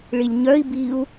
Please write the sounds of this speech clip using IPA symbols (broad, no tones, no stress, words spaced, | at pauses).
ɭilʲɲœi̯ biu̯